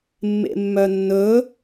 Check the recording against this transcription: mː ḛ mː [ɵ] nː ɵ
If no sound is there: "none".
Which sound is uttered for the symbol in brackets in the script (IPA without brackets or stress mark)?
œ